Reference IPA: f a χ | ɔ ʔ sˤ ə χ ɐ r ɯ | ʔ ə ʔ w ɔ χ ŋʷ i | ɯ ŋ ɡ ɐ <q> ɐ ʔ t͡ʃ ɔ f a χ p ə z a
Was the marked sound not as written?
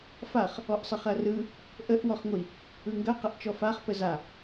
no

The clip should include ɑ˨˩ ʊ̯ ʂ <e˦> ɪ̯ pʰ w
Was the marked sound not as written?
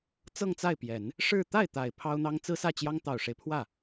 no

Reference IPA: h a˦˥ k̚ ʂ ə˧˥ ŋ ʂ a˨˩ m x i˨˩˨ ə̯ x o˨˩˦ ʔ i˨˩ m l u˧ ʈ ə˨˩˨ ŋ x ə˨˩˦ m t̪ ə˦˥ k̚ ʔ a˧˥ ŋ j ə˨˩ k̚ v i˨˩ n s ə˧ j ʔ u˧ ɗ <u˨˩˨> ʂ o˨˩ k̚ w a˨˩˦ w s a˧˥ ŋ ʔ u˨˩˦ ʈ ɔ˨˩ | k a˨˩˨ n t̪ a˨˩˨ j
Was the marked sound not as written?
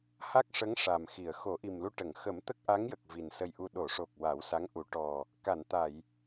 yes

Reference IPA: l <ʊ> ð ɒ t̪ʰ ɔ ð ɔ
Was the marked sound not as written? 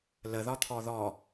yes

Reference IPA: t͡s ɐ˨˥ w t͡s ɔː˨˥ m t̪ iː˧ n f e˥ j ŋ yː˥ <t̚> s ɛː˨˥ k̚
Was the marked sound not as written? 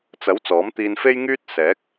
no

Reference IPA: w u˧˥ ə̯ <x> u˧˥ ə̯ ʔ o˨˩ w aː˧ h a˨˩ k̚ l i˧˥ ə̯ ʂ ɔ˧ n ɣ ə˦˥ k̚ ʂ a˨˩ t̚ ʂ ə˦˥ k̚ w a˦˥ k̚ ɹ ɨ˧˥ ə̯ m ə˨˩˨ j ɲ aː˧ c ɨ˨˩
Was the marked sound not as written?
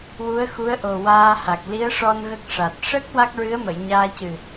no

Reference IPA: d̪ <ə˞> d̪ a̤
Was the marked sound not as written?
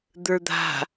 no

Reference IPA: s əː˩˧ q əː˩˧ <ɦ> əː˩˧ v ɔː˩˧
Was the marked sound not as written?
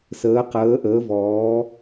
yes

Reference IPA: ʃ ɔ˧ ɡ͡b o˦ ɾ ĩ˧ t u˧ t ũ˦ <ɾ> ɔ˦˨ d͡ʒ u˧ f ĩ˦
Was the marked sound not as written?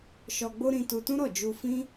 no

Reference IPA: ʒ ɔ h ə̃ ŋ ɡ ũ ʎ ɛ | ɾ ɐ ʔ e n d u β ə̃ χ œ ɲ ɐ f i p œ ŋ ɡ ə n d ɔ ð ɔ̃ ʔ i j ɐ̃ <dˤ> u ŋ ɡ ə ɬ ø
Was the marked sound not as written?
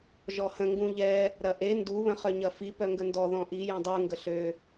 no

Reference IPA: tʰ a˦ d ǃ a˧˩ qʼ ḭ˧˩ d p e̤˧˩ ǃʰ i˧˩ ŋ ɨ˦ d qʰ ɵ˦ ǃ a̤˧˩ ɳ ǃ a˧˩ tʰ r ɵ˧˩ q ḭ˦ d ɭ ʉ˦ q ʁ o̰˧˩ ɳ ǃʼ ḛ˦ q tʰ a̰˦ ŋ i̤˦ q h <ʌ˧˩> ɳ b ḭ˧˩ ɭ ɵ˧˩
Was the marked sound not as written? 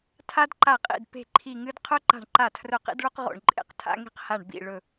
yes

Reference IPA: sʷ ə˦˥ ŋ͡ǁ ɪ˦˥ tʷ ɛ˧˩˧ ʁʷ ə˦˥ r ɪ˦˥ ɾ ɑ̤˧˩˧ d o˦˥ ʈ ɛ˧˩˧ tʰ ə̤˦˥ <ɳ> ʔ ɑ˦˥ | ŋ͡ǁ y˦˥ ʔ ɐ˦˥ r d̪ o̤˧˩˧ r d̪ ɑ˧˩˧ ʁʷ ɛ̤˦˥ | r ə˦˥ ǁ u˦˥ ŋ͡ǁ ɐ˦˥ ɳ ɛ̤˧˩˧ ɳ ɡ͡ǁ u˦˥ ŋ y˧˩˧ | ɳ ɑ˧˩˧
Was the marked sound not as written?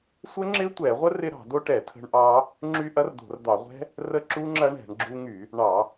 no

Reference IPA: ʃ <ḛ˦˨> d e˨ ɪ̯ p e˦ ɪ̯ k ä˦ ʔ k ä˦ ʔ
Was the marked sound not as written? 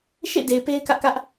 no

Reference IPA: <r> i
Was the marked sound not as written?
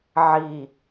yes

